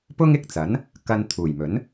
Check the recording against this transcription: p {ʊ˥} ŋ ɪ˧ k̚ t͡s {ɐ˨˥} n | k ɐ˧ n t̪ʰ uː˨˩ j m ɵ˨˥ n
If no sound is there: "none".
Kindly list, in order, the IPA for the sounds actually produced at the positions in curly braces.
ʊ˥, ɐ˨˥

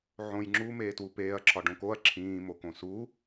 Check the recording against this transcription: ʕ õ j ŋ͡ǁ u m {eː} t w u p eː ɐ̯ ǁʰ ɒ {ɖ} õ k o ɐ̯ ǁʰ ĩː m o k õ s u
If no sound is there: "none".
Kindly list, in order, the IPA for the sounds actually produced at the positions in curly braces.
eː, ɖ

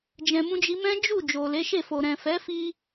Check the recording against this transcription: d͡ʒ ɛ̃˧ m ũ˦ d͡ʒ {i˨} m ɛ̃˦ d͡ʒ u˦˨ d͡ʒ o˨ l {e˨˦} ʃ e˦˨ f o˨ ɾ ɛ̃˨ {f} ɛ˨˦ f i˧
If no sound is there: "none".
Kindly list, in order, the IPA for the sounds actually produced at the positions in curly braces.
i˦, e˨˦, f

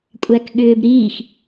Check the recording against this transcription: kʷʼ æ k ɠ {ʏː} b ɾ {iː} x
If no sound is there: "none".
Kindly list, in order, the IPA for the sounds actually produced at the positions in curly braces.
ʏː, iː

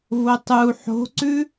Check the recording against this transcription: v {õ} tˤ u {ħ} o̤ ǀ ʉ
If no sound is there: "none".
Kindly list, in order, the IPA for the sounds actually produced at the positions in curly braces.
o, ħ

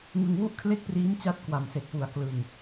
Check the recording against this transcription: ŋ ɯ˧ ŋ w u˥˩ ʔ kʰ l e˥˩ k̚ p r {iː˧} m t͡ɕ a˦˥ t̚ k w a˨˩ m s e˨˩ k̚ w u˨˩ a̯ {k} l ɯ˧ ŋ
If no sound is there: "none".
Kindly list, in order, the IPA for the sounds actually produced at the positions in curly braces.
iː˦˥, k

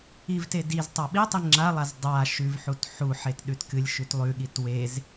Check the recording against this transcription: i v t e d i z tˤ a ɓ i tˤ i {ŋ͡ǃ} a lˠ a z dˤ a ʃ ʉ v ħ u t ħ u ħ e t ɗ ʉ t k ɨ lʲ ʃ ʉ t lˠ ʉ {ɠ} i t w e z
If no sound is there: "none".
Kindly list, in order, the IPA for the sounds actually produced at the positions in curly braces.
ŋ͡ǁ, ɠ

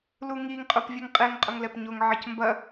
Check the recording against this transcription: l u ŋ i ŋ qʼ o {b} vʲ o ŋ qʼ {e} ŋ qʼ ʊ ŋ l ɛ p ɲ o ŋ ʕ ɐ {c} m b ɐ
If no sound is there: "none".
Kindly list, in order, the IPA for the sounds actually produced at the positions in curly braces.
p, e, c

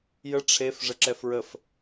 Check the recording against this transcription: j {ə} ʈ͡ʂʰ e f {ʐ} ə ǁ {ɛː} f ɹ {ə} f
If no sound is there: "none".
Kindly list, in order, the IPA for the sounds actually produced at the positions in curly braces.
ə, ʐ, ɛ, ə

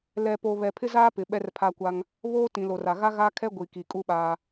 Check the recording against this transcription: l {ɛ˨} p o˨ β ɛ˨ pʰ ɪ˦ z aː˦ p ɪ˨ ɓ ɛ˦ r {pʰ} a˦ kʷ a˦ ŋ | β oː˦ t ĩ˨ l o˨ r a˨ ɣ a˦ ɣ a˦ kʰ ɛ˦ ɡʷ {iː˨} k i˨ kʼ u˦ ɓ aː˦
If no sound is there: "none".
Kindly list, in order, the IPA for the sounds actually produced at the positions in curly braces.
ɛ˨, pʰ, i˨

